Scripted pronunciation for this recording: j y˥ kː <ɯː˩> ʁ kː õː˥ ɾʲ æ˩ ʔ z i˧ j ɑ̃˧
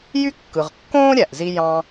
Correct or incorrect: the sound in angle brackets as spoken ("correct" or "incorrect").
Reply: incorrect